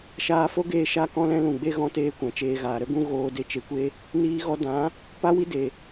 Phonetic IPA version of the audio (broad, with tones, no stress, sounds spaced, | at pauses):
ʃ aː˧ f o˦ ɡ eː˧ ʃ a˦ k ɔ̃˦ l ɛ̃˦ l ũ˨ ɡ͡b e˧ ɣ ɔ̃˧ t eː˧ kʷ ã˨ t͡ʃ eː˧ ɣ aː˨ ɾ ə˦ ɡ ũ˦ ɣ oː˧ d e˧ t͡ʃ e˧ kʷ e˦ | n iː˧ ɣ ɔ˧ d ã˨˦ | p a˦ w i˦ d e˨